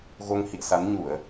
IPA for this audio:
ɣo˧ŋhḭ˧˨ə̯sa˨˦nɲu˧˩˨ə̯

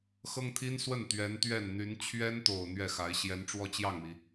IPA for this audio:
xɤ˥ŋt̪ʰi˥nswə˥˩n t̪ɥɛ˧˥nt̪ɥɛ˥˩nn̪y˧˥n t͡ɕʰɥɛ˥nt̪o˨˩ʊ̯ n̪ɥɛ˥˩xa˧˥ɪ̯ ɕjɛ˧˥nʈ͡ʂwɔ˥˧t͡ɕjɑ˥˩ŋmi˩

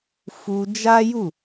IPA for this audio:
fu˧d͡ʒa˦ju˦˨

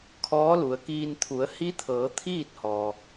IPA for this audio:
kʰɔː˧˥lu˩ə̯kiː˧n t̪ʰu˩˧ə̯hi˧˥t̪ʰɤː˩˧ t̪ʰiː˥˨t̚hɔː˩

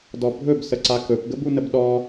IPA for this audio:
dɔbʱɵb səǀakɵp ɡəbunəbɗɔ

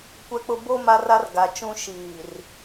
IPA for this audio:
kʷɛ˦k͡pʊ˦ bo˦ ma˦ra˦r ɡa˨t͡ʃũ˦ ʃiː˨r

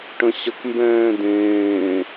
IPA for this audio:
ʈə̃ɕəkmbɛ̃ː dẽː

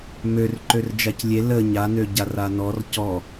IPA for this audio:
mørǃør d͡ʒaclʲe lə ɲanø ɟaranɔr cɔ

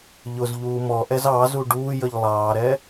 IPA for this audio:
ʎʊz ʎuːmɔʔɛz ɑzu ɖuːjəʎ lˠɑːɾɛ

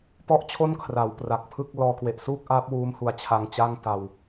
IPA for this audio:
pɔ˥˩ʔ t͡ɕʰo˥˩nkʰra˩˦w pra˨˩k̚pʰɯ˥˩k̚lɔː˦˥ kwe˨˩ʔsuː˥˩k̚ʔaː˦˥p̚wuː˦˥m hu˧a̯t͡ɕʰa˦˥ŋt͡ɕa˥˩ŋ ta˧w

